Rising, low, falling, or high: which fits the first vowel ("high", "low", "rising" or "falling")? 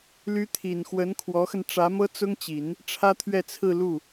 rising